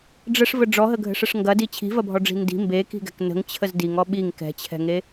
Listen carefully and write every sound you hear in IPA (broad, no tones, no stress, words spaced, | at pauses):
ɖ͡ʐəʂvə ɖ͡ʐɔɦəɡʱə̤ʂəʂ ŋɡɐdi t͡ɕʰi̤vɐbʱɔɖ͡ʐi̤ ndi̤ mbeki̤ɡɛ̤k nə̤ŋt͡ɕʰəz diŋɔ ɓiŋ kɛ̤t͡ɕʰɛ̤ŋe